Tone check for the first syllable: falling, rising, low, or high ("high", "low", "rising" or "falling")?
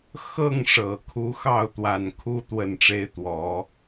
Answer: falling